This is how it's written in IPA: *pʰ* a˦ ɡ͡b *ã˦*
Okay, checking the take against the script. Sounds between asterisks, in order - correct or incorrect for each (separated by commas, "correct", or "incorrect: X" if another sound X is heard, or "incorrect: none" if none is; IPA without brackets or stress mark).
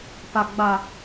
incorrect: p, incorrect: a˦